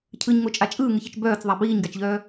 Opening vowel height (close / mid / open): close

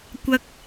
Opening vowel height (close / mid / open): open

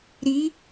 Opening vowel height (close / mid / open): close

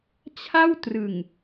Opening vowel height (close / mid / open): open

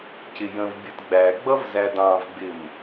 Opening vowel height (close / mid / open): close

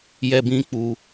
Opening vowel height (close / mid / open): mid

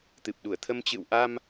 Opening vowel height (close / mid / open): close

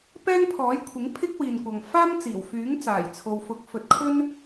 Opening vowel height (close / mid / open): mid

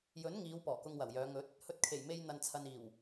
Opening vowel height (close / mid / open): mid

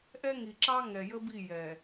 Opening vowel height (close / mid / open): mid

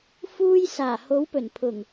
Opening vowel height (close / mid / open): close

